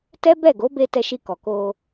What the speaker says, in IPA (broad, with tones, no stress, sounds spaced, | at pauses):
t ɛ˦ b ɛ˦˨ ɡ o˨˦ b e˧ t ɛ˧ ʃ i˧ k ɔ˨ k o˧